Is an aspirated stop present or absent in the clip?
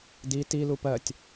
absent